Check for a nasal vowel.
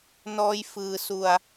absent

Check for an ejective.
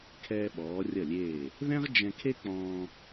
absent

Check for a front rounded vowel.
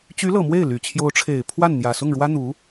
present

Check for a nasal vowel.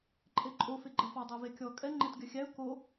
absent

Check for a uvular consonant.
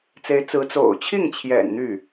absent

